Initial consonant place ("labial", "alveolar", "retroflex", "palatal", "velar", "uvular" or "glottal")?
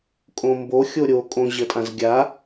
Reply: velar